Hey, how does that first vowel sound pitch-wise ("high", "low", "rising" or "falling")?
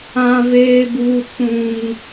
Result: high